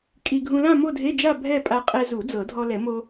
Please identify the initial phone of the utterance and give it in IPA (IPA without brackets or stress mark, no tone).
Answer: kʼ